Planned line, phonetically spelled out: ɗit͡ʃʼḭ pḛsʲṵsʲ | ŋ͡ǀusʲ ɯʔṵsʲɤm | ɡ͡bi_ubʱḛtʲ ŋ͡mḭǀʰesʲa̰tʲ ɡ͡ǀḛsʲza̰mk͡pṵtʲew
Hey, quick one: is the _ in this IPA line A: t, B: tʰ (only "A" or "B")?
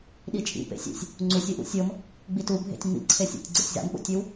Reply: A